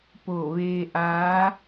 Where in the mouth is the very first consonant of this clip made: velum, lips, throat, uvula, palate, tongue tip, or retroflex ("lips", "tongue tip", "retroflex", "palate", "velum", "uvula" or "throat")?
lips